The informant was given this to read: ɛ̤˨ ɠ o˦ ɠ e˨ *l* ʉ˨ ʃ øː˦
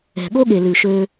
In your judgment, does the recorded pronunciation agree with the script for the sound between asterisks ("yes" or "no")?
yes